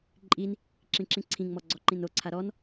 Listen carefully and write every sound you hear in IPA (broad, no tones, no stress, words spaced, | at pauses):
ǃʼin | ǁĩǁĩǀʰĩŋmɔ ɡ͡ǀɔǃĩnoǀʰa ɾɔn